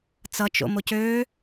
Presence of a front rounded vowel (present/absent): present